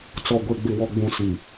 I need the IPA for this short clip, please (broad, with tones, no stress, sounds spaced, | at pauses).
t͡s ɔ˨ ɡʷ e˨ ɡ͡b ɪ˨ w ɔ˨ ɡ͡b ũ˨ s i˨